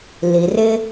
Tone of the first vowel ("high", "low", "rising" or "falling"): low